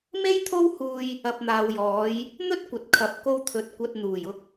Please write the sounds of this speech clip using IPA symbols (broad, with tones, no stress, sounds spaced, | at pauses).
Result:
m e˥ j t̪ʰ o˥ w h uː˧ j | ɐ˨ p̚ n̪ aː˨ w j ɔː˨˧ j | n̪ ɵ˥ t̚ kʷ ɐ˨ t̚ kʰ ɐ˨ p̚ k o˧ w t̪ʰ ɵ˨ t̚ kʷ ɐ˨ t̚ n̪ uː˨˩ j ʊ˧ k̚